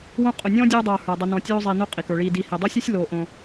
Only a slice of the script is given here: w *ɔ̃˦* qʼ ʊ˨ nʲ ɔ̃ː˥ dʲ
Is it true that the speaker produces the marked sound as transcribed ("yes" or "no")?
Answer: no